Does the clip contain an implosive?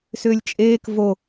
no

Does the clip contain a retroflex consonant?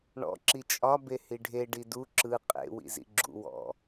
yes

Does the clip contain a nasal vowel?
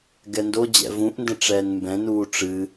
yes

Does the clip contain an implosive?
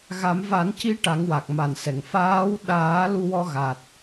yes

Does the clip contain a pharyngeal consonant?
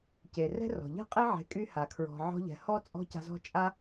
yes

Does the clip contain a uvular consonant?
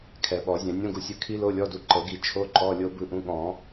no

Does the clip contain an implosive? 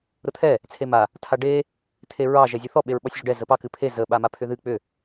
yes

